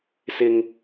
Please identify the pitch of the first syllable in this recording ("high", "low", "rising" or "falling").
high